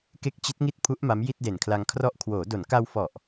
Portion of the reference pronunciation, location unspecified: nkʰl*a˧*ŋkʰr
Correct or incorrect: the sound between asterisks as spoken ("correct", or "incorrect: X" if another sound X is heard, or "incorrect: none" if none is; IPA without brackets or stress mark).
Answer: correct